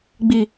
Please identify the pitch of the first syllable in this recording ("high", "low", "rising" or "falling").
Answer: low